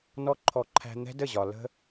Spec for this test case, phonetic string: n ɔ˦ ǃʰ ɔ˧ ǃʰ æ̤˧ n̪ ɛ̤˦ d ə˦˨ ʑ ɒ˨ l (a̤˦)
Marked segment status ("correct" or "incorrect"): incorrect